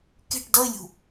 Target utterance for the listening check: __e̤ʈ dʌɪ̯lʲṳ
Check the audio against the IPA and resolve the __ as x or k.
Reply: k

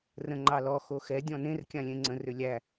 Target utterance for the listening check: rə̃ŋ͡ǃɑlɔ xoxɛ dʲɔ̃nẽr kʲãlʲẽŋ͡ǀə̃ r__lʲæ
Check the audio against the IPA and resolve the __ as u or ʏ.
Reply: ʏ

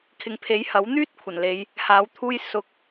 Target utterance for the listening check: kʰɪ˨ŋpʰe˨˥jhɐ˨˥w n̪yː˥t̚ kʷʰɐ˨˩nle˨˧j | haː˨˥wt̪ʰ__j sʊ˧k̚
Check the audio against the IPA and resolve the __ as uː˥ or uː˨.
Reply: uː˥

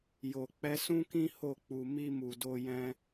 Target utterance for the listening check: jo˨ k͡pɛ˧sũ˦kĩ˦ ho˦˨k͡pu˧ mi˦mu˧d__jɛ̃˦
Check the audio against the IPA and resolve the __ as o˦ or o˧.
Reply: o˦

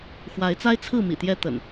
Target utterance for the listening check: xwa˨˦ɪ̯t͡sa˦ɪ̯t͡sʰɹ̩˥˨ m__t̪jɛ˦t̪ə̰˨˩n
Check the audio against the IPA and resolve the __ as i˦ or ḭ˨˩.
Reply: ḭ˨˩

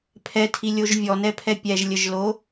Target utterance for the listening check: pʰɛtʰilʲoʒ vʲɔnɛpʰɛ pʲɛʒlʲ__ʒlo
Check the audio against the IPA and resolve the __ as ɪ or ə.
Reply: ə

